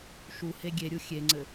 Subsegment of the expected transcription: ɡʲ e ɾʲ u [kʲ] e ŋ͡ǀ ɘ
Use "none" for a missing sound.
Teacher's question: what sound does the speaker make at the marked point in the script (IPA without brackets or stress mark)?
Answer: xʲ